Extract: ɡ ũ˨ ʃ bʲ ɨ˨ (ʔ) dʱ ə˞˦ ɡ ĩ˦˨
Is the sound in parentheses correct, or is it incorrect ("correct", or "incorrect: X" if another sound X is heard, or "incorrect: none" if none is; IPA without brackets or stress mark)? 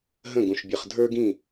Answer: incorrect: χ